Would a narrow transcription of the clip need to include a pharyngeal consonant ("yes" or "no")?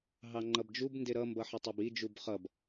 yes